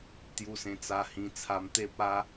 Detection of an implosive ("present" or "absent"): absent